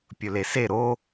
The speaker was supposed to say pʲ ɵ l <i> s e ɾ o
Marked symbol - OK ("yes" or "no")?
no